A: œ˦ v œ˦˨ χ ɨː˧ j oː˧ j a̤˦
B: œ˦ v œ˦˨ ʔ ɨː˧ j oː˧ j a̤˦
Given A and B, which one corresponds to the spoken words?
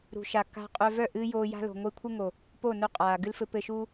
B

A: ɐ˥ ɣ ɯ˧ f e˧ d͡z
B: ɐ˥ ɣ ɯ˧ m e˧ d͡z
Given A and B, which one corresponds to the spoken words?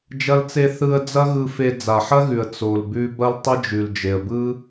A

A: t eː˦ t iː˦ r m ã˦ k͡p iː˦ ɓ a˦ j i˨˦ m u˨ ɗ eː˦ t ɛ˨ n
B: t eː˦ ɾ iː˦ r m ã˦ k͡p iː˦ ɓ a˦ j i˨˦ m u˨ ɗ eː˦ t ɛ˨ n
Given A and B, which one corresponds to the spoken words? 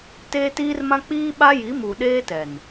A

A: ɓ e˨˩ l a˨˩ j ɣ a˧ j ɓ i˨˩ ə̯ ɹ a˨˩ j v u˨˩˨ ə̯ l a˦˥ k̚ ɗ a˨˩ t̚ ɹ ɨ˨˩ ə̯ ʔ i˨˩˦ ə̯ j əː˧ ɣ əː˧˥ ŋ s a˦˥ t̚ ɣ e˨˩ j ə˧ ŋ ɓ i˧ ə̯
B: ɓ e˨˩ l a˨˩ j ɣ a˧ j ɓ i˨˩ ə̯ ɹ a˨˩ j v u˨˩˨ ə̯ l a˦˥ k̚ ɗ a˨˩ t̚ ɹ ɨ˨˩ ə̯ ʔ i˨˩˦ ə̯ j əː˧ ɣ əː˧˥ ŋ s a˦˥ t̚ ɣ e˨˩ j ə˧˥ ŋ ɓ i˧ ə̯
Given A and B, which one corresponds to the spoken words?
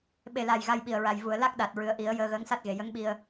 B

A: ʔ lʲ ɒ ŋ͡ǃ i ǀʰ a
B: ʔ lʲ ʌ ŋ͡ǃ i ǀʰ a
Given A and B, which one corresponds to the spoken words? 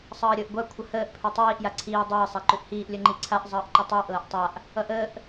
B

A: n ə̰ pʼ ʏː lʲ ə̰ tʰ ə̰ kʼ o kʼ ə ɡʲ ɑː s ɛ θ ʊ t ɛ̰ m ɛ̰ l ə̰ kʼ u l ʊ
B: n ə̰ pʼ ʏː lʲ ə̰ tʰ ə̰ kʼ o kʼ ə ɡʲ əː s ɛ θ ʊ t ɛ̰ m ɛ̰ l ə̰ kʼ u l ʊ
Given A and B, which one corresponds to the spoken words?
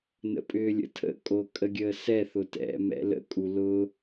B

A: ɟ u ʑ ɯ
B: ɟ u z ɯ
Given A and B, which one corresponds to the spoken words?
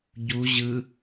A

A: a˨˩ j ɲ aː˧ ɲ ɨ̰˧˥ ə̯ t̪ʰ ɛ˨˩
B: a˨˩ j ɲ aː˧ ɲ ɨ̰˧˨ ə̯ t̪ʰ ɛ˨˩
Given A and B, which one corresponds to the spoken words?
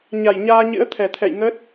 A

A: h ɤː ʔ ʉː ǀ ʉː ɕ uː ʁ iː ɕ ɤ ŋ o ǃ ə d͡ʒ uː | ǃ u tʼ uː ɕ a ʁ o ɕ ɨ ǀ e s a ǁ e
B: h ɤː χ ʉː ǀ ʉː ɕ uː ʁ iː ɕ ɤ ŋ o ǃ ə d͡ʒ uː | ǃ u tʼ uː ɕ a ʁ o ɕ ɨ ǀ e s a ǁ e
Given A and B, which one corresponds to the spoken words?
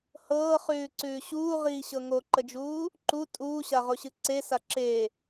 B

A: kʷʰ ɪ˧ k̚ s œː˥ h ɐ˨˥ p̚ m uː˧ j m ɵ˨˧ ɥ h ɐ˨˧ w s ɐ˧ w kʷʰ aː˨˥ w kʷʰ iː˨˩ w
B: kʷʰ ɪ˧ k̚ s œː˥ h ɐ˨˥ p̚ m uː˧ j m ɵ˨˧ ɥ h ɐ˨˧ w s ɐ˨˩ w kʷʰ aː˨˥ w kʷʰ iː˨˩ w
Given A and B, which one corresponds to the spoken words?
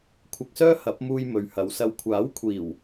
A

